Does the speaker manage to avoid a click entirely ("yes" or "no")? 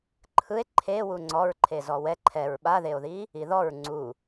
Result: no